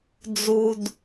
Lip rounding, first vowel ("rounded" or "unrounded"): rounded